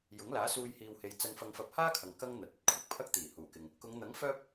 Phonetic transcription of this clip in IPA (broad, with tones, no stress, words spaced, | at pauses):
jʊ˨˥ŋlaː˨˥suː˧j hiː˨whe˨˧j t͡sɐ˧nfɐ˧ŋfɐ˧p̚ haː˥kʰɐ˨ŋ kɐ˥ŋn̪ɐ˨t̚ ɵ˥t̚kʷʰɪ˥k̚pʰɐ˥k̚ t̪iː˨˩huː˨˩kɪ˨ŋ | kʊ˨˧ŋn̪ɐ˨˥ŋ fœː˥p̚